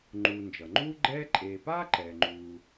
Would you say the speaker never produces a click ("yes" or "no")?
no